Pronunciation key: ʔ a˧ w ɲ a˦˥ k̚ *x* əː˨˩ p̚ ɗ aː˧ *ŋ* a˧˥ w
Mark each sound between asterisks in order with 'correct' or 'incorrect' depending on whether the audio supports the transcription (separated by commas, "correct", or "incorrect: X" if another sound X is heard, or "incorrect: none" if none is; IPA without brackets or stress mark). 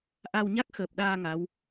correct, correct